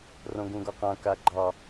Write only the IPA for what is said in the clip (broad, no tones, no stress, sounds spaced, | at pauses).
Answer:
r õ ɡ ũ ɡ ɒ q ã k a ɡ͡ǃ ɑ